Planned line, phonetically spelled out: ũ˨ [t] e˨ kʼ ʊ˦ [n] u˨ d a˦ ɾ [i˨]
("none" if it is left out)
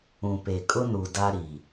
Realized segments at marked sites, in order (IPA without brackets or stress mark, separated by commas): p, n, i˨